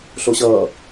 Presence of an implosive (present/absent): absent